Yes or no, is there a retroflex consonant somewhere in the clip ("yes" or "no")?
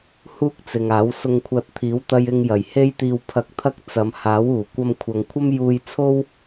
no